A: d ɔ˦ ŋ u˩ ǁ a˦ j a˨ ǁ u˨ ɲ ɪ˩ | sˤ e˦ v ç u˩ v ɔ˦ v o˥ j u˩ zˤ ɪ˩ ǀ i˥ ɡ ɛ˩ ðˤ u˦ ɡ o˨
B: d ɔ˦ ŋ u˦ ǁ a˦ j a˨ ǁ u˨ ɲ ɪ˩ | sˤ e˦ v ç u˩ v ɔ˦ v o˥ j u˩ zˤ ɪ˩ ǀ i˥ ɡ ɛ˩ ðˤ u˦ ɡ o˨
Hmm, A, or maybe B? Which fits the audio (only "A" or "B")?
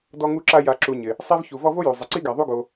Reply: B